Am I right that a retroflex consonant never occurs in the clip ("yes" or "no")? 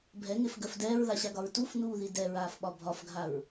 yes